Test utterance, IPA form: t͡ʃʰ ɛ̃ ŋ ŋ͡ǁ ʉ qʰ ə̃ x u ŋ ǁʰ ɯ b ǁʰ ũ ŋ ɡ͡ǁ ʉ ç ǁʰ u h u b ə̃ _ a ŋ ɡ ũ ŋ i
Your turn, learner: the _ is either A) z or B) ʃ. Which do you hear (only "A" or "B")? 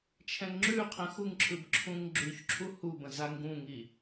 A